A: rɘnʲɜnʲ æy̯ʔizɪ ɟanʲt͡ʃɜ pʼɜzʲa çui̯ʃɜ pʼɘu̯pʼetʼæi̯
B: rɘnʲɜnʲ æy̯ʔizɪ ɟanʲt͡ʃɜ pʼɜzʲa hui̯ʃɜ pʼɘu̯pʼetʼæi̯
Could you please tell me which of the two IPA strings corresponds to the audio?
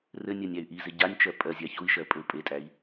A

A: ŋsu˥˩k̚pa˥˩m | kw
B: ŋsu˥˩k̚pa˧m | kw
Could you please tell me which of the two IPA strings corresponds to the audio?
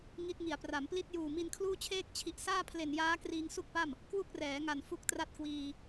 A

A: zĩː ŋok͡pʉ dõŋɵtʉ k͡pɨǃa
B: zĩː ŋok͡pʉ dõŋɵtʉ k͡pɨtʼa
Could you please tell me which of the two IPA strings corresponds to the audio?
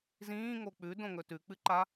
A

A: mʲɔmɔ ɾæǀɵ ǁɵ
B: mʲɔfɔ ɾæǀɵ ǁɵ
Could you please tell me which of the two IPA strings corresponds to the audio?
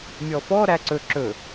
B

